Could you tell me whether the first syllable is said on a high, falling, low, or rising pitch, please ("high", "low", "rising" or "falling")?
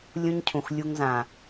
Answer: high